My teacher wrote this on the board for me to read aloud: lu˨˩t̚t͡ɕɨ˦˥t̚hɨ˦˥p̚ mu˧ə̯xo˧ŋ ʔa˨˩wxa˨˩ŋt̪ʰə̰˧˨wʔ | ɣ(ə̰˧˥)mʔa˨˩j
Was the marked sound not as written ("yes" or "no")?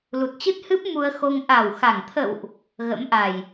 no